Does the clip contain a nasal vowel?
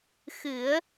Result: no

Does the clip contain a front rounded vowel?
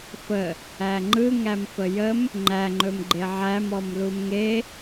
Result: no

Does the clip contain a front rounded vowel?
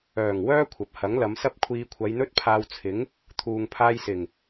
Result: yes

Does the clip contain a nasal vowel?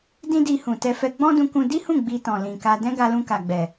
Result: yes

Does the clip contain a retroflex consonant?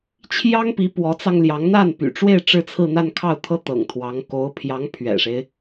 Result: yes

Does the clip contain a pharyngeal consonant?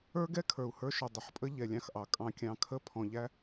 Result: yes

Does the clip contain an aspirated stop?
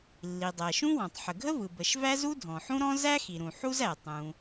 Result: no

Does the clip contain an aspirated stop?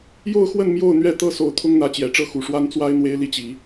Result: yes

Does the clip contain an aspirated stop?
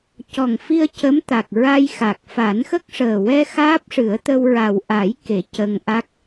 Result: no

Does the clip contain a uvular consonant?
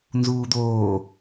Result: no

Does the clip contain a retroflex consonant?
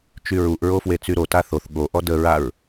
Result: no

